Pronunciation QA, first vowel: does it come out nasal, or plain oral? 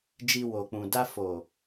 oral